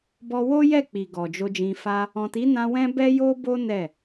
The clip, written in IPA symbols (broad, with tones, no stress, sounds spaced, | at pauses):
b ɔ˧ w o˦ j ɛ˦˨ k͡p i˨ ɡ ɔ˨ d͡ʒ o˧ d͡ʒ ĩ˧ f a˦ | ɔ̃˨ t i˨˦ n ã˧ w ɛ̃˦ b ɛ˦ j o˦ b o˦ n ɛ˦˨